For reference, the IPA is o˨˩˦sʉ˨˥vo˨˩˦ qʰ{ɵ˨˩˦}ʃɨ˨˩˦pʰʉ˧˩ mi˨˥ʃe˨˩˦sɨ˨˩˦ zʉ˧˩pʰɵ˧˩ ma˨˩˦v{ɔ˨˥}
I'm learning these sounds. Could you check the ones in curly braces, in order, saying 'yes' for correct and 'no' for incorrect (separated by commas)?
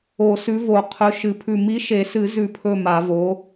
no, no